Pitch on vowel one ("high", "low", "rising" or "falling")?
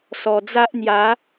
low